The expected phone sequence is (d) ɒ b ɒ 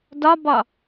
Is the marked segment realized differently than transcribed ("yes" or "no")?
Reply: no